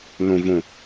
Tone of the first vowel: low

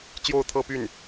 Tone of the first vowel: falling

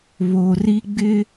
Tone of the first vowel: low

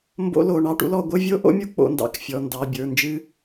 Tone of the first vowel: high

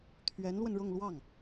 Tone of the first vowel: rising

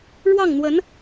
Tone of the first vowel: falling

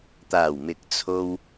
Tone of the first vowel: low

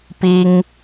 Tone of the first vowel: high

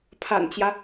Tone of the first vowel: low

